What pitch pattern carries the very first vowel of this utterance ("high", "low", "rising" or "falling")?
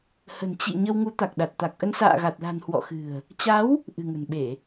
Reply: low